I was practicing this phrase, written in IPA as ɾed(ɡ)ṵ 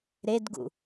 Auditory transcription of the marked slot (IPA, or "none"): ɡ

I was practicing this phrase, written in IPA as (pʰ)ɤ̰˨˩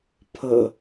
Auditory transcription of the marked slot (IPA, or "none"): pʰ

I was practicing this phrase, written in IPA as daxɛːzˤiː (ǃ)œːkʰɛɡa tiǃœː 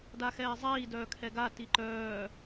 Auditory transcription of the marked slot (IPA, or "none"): d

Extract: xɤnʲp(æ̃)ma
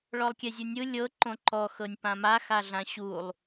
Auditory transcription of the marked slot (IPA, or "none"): ã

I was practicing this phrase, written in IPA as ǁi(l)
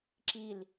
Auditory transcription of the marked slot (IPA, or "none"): l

